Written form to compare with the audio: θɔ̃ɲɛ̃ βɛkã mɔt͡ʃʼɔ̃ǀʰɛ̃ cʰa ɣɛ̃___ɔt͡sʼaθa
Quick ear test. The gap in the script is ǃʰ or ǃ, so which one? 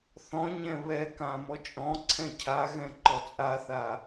ǃ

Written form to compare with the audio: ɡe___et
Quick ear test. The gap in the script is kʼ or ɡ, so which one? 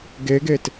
ɡ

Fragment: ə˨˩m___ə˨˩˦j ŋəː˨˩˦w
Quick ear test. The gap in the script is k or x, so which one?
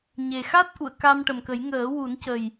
k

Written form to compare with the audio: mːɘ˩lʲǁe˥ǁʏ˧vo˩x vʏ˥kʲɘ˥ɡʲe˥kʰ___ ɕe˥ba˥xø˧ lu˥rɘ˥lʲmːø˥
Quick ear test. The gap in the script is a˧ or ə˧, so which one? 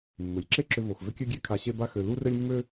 a˧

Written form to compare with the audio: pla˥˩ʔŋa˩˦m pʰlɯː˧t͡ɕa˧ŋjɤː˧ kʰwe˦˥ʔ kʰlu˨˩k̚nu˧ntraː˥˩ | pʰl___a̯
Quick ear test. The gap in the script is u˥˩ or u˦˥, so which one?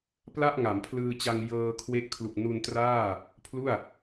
u˥˩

